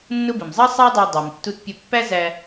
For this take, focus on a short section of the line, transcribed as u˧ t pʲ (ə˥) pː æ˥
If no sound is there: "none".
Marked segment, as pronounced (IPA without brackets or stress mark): ə˧